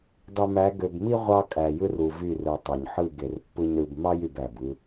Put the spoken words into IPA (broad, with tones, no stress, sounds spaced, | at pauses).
dˤ y˨ m æ˨˦ ɡ ø˨ b m i˦ ʁʷ ɑ˦ kʼ æ˨ j ɯ˦ r u˨ v y˦˨ r ɯ˨ tˤ o˨ ɲ ħ ɯ˦˨ ɡ e˨ r pː ɯ˦ ɲ ɾ ɯ˦ b m ɑ˦ j y˨ b æ˨ b ɯ˦